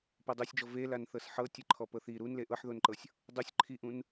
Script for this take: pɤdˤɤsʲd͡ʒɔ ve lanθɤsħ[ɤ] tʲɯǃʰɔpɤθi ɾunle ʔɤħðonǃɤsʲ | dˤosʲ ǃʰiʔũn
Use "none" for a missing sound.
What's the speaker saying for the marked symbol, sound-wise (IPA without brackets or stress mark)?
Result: ɤ